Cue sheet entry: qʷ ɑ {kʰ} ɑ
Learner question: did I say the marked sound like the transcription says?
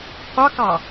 no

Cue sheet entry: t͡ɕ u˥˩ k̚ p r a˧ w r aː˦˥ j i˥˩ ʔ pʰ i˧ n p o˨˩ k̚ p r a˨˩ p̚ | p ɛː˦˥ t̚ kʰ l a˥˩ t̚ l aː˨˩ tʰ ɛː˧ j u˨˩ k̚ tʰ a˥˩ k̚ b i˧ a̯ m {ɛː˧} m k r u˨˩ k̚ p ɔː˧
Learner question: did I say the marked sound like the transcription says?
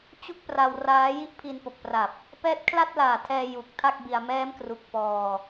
no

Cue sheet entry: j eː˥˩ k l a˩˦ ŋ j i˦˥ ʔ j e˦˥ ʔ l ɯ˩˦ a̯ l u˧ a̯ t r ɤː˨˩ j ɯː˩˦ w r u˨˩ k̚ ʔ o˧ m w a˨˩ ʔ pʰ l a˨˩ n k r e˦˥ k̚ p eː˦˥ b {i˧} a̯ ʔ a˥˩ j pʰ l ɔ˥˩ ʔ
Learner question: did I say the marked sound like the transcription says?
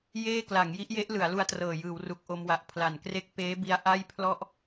no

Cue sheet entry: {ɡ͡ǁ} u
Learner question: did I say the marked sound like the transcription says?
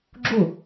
yes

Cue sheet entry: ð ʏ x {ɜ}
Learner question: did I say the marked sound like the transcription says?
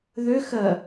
yes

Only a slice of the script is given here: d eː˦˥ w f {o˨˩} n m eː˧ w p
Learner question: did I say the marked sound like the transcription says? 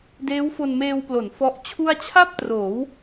no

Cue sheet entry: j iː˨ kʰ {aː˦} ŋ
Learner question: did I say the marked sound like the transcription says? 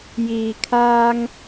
yes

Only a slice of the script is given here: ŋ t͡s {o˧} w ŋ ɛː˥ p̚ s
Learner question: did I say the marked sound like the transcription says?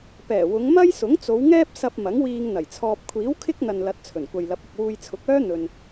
no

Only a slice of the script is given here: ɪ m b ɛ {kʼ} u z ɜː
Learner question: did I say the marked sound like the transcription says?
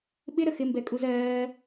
yes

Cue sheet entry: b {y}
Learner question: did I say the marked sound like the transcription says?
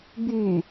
yes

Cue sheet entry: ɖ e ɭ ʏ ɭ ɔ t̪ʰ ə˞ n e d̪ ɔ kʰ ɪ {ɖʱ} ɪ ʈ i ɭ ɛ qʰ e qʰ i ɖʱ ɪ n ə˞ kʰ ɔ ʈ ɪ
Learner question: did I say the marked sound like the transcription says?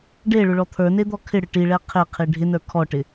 no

